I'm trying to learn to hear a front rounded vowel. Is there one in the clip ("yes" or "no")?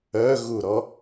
yes